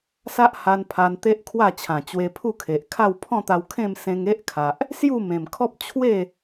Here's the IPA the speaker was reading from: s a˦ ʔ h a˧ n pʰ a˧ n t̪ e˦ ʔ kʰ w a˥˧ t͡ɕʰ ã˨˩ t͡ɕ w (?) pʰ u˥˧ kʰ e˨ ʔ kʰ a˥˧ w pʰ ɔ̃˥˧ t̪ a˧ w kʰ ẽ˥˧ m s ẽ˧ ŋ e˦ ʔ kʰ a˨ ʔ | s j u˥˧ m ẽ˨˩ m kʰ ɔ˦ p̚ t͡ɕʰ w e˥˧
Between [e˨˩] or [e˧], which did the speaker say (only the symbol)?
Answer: e˧